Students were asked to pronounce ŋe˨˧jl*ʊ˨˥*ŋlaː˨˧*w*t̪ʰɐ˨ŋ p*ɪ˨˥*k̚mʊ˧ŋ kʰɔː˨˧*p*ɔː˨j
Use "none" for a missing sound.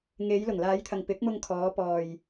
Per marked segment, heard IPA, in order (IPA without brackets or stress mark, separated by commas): ʊ˨˩, j, ɪ˨˥, p